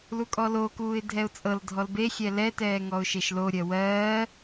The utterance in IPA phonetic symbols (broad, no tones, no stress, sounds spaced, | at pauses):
l u kʼ ɔ l o k uː ɪ̯ dʱ ɛ ʊ̯ t͡sʼ ɤ l dʱ ɔ l b e xʲ ɛ l ɛ t ɛː ŋ ɔ ʊ̯ ʃ e ʃ l o ɾʲ ɜ w ɜː